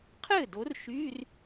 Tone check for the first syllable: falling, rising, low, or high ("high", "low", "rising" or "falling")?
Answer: falling